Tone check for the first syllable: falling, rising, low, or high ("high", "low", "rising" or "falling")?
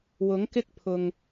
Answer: rising